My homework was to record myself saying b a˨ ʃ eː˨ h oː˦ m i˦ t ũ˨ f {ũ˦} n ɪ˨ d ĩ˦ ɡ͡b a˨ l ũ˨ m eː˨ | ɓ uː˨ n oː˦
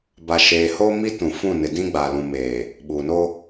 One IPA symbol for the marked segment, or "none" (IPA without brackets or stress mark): ũ˦˨